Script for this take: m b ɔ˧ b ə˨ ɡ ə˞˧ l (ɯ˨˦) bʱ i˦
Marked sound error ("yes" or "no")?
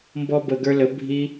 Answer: yes